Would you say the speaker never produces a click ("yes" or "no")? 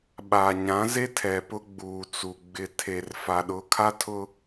yes